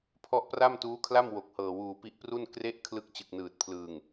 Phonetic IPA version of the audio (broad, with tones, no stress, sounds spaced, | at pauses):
pʰ ɔ˦˥ ʔ p r a˥˩ m t uː˦˥ kʰ l a˥˩ m w o˨˩ k̚ h ɤː˨˩ w uː˨˩ p i˦˥ ʔ p r u˥˩ n k r e˦˥ ʔ kʰ l ɯ˦˥ k̚ t͡ɕ ɯ˨˩ k̚ n ɯː˨˩ t̚ pʰ l ɯː˨˩ ŋ